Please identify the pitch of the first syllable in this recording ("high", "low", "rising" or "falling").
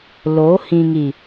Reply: rising